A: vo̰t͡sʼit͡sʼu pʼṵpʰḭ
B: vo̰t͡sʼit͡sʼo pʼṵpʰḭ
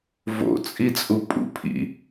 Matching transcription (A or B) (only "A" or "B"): A